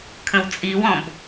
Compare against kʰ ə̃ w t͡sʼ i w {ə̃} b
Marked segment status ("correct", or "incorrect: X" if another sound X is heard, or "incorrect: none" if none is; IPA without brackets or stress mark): incorrect: ɔ̃